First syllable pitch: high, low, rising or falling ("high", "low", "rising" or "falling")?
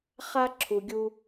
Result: high